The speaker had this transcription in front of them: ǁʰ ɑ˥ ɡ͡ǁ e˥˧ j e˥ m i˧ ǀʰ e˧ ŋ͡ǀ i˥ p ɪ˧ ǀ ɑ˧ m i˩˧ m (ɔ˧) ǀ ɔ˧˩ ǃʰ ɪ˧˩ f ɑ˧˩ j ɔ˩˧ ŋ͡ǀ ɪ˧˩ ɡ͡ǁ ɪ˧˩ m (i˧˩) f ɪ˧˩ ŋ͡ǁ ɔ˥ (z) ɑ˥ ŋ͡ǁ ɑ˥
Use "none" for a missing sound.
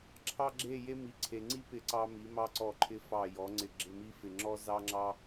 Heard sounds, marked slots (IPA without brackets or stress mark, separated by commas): ɑ˧, i˧, z